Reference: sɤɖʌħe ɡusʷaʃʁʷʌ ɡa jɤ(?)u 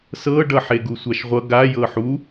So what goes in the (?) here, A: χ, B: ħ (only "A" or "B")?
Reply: B